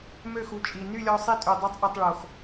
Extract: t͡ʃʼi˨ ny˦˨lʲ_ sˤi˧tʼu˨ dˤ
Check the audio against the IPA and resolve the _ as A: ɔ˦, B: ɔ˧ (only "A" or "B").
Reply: B